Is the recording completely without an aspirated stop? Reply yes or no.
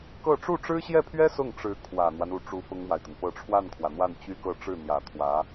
no